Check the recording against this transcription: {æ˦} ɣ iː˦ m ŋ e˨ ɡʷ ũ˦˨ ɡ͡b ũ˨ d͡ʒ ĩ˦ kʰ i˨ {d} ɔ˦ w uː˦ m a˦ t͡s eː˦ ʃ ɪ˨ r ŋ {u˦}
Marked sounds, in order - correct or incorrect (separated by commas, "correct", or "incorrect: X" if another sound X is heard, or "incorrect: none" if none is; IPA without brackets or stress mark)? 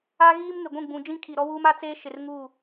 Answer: incorrect: a˦, incorrect: ɾ, incorrect: u˦˨